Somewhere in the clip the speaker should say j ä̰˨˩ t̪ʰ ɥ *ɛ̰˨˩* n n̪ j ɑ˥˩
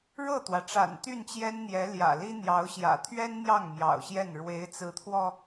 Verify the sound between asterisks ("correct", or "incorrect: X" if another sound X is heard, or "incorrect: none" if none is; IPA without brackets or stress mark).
incorrect: ɛ˥